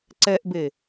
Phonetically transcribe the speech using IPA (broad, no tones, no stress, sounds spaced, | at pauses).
ǀ ɛ ʔ b e